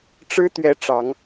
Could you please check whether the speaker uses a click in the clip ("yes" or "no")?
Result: no